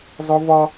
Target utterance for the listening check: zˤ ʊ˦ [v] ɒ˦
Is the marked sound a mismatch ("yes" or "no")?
no